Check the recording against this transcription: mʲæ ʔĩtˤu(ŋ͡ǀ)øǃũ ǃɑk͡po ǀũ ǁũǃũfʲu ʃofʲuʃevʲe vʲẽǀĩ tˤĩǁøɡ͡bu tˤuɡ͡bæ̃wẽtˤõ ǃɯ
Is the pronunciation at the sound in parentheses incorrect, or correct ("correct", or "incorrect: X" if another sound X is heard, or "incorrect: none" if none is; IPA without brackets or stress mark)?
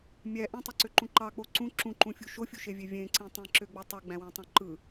incorrect: ǀ